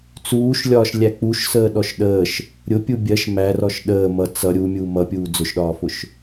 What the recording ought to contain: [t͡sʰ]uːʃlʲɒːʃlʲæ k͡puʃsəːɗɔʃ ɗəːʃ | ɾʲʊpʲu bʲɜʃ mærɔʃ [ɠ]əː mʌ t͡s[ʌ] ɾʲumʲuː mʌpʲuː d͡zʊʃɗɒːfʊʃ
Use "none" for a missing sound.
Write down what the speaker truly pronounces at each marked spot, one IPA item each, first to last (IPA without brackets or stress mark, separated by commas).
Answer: t͡s, ɗ, ʌ